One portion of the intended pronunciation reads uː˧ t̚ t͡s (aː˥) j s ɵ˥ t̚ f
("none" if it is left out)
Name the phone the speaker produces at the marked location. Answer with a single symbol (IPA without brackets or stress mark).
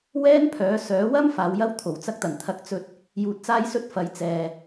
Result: aː˥